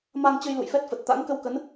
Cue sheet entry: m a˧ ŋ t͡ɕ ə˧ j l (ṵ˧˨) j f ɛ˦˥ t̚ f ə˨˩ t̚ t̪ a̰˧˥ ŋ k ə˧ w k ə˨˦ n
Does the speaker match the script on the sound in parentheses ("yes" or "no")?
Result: yes